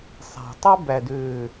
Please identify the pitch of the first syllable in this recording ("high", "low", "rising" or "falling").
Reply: low